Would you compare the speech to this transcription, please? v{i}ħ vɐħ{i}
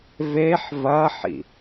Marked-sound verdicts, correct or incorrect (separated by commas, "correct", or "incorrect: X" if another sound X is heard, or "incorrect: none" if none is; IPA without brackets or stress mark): incorrect: e, incorrect: ḭ